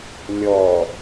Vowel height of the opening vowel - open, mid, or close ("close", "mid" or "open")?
mid